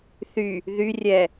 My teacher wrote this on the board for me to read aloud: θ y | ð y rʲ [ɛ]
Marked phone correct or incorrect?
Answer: correct